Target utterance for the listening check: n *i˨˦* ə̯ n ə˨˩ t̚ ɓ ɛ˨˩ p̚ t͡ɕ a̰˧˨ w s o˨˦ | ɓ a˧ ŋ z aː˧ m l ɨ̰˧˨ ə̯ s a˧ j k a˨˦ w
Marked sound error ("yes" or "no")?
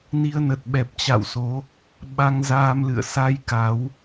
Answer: yes